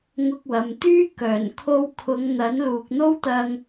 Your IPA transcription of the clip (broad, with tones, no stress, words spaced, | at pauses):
ŋʊ˧k̚wɐ˨mt̪yː˥ kœː˨˩nkʰo˧wkʰʊ˨˧ŋ n̪ɐ˨˥nluː˨k̚n̪o˥wt̪ɐ˧ŋ